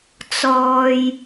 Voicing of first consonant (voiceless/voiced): voiceless